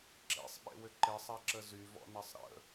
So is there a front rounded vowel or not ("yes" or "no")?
yes